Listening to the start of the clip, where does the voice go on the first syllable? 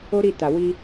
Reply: high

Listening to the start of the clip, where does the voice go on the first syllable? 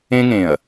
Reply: high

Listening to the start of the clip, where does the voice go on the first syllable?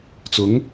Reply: rising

